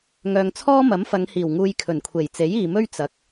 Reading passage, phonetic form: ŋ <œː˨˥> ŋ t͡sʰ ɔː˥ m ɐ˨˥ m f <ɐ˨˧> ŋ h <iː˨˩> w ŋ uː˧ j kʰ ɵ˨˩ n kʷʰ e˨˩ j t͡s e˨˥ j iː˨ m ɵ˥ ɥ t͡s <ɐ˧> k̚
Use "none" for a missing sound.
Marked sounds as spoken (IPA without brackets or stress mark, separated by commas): œː˨, ɐ˨˧, iː˨˩, ɐ˨